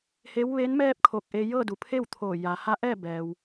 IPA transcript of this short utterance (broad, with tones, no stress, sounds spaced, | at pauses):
h eː˧˥ w ʋ e˧˥ n m ɛː˥˨ p̚ kʰ o˧˩ k̚ ʔ e˧ j ɤː˥˨ d u˩˧ pʰ e˥˨ w t̪ʰ oː˧˩ j a˩˧ h a˧˥ ʔ ɛː˥˨ b ɛː˩ w